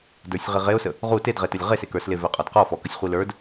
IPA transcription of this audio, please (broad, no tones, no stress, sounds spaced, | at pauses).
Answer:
d ə˞ sʲ ʁ i ʁ e ʊ̯ s ə | ʁ u t e d ʁ e t ə lʲ ʁ e s e k ə˞ s l e v ɛ qʼ ɔ d q ɔ f ɔ k ə sʲ χʷ i l ə˞ d